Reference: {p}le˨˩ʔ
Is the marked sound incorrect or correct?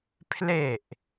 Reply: incorrect